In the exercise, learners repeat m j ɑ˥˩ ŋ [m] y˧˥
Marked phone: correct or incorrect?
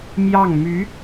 correct